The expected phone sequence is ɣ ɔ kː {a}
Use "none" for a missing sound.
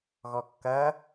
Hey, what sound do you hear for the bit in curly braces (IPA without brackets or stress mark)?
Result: ɐ